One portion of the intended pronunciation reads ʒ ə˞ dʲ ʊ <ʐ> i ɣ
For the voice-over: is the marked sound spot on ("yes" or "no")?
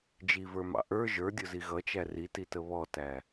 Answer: no